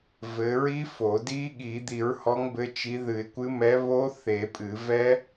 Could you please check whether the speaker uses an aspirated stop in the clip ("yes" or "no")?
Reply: no